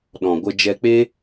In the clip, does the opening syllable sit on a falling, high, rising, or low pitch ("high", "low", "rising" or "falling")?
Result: low